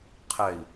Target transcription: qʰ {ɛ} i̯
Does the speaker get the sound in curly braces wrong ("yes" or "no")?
no